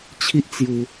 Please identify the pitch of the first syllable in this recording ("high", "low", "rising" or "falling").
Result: high